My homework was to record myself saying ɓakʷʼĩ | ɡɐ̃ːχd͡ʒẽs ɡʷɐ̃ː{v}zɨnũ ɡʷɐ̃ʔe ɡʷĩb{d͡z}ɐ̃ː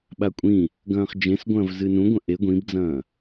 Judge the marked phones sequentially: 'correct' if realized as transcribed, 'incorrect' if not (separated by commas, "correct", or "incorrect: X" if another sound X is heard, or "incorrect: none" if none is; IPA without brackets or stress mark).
correct, correct